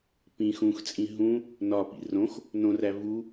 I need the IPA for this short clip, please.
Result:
p ĩ x ũ x t͡sʼ ĩ ɦ ũ | n ɒ p ḭ r õ x | n õ r æ v u

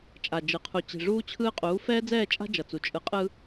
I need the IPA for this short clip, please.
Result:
t͡ʃʼ a˨ d͡ʒ ɯ˨ qʰ u˨ t͡ɕ i̤˨ ʐ uː˦ t͡ɕʰ ɯː˦ qʼ uː˨˦ f ɛː˦ d͡z ɛː˦˨ t͡ʃʼ a̤˦ d͡ʒ ʌ˨ t͡s u˨ t͡ʃʼ ɯ˨ qʼ ɯ˦

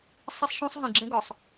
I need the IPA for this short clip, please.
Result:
sˤ e˦ sˤ ʃ õ˦ sˤ ɦ ĩ˨ ɡ͡ǁ ẽ˦ ɡ ɒ˨ sˤ

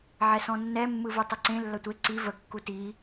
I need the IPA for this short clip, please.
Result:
ʕ ɛ s ɔ̃ nː ɛ mː ɯ v ɯ tˤ ə ǀ ẽ lː ɐ tʷ e ǀ i v ə kː u t i

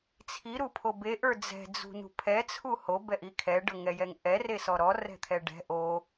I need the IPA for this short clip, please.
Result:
t͡sʰ i ɾ u pʰ o b e ʔ ə˞ d͡z ɛ̤ d͡z ṳ n ṳ pʰ ɛ t͡sʰ u h o b ɛ ʔ i kʰ ɛ ɖ ɤ ŋ ɛ j ɛ ŋ ʔ ɛ r e s ɔ ɾ ɔ r ɛ̤ t̪ʰ ɛ ɖ ɛ̤ ʔ o

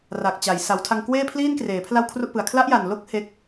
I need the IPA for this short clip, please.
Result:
r a˨˩ k̚ t͡ɕ a˩˦ j s a˩˦ w tʰ a˧ ŋ k w eː˥˩ pʰ l iː˥˩ n k r eː˩˦ pʰ l a˥˩ w kʰ r u˥˩ ʔ p ɯ˨˩ a̯ kʰ l a˦˥ ʔ j a˨˩ n l o˦˥ k̚ h e˦˥ k̚

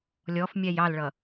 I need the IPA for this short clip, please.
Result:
lʲ ɔ f mʲ æ j ɑ l ɭ ʌ

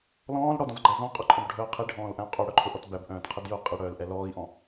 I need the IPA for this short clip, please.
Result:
l ɔ̃ː l ɽ ɔ d ɔ̃ z ɡ͡ǃ æ z ɔ̃ qʼ ʊ ǃʼ ɔ̃ b ɖʱ œː qʰ i ɖʱ ɔ̃ː l ʔ æ̃ u̯ qʼ œ ɽ œ ǃʰ ʊ ʔ ɔ t b æ b ʔ œ̃ː t qʰ ɛ d j ʊː qʼ i ɽ œː l ʔ ɛ l ɔː i̯ ʔ ɔ̃

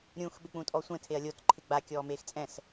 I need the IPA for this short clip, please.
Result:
ɾʲ ũ x ɓ ɪ k͡p ũ tʼ ɔ sʷ ɛ̃ tʰ e ɐ̯ lʲ o t ǃʰ ɪ ɡ͡b a kʲ ɔː m eː x t͡sʼ ɛ̃ s

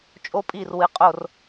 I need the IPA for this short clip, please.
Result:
t͡ʃʼ o˦ pʼ i˦˨ r w ɨ˨ qʼ o˦˨ r

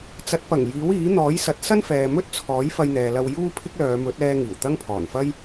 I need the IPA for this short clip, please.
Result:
t͡s ɐ˨˥ t̚ p ɐ˨˩ ŋ j iː˨˥ w iː˨˥ n̪ ɔː˨˥ j s ɐ˨˥ t̚ s ɐ˥ n f ɛː˨ m ɵ˥ t̚ t͡sʰ ɔː˨˥ j f ɐ˧ j n̪ ɛː˨ l ɐ˧ w j uː˥ pʰ ɪ˥ k̚ l œː˨˧ m ɵ˨˥ t̚ ɛː˧ ŋ iː˨˩ w t̪ ɐ˥ ŋ pʰ ɔː˨˩ n f ɐ˥ j

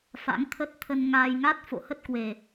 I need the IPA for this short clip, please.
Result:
f a̰˧˥ ŋ t̪ʰ ə˦˥ t̚ t̪ʰ ə˧ n ŋ aː˧ j ŋ a˦˥ t̚ f o̰˧˨ h ə˦˥ t̚ k w e˨˩

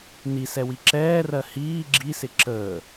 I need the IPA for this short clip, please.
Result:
n i s ɛ w i ǁ ɛː r ɜ h iː ɡ͡ǁ i s ɪ ǁ əː

